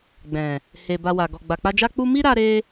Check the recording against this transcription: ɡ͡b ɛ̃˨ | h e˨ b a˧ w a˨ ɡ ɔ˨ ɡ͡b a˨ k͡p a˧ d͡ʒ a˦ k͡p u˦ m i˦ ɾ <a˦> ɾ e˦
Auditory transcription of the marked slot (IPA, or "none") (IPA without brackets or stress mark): a˦